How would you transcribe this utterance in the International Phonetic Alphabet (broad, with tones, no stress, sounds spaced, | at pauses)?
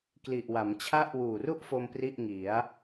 k l i˨˩ ʔ w a˩˦ m t͡ɕʰ a˦˥ ʔ w uː˨˩ r u˥˩ ʔ f o˧ m p r i˥˩ ʔ ŋ i˩˦ a̯